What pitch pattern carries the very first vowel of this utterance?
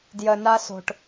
low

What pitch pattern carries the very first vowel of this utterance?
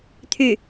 falling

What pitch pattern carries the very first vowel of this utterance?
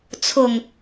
low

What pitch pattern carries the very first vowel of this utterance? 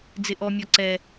high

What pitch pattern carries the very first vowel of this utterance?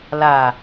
low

